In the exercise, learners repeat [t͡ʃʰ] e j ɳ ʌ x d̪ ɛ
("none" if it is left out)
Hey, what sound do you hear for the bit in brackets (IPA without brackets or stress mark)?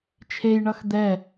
t͡ʃʰ